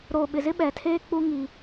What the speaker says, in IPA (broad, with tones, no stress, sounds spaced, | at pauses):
ɾ oː˨ ɓ ɪ˨ z ɪ˦ ɓ ɛ˨ tʰ eː˦ k͡p u˦ ŋ i˦